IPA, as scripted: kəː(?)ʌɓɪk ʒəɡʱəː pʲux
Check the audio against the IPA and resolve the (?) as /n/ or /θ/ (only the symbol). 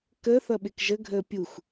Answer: θ